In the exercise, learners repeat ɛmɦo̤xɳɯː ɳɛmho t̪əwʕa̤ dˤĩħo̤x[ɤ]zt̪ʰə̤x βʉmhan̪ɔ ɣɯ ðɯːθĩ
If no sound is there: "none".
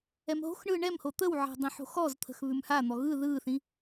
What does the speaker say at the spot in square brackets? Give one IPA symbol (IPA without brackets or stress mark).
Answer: ɔ